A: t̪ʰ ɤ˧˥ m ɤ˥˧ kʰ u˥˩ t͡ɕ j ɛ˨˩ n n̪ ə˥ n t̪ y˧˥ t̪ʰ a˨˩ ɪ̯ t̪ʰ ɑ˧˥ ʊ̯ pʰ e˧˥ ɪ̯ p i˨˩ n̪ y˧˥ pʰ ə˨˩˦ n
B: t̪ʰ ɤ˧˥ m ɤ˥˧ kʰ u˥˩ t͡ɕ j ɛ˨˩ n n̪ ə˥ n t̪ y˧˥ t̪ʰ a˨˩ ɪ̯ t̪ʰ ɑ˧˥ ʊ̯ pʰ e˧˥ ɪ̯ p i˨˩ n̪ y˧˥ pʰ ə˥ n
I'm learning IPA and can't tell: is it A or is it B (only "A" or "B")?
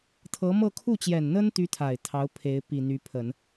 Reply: A